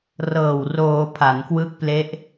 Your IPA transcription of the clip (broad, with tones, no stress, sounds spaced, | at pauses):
r ɤː˨˩ w r oː˩˦ pʰ a˩˦ n k w ɯ˦˥ k̚ p l e˦˥ ʔ